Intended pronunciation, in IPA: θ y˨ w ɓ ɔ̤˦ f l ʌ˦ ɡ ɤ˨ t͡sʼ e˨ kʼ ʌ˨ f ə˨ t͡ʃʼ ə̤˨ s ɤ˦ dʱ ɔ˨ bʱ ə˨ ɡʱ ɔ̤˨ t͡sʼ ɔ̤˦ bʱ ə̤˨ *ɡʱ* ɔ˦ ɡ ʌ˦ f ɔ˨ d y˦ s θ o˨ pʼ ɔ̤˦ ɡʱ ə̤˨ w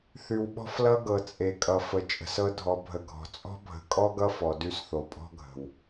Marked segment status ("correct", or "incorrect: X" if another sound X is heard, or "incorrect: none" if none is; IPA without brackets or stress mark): incorrect: kʼ